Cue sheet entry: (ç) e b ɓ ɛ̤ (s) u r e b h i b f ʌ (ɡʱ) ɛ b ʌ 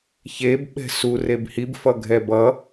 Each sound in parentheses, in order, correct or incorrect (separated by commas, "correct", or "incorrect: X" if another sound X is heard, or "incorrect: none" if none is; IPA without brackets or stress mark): correct, correct, correct